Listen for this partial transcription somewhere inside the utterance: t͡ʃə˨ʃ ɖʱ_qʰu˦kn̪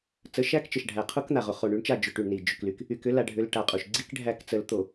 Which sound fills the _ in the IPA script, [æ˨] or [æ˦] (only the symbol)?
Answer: æ˨